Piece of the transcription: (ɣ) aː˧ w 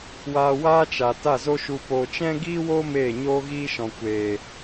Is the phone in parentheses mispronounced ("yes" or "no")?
yes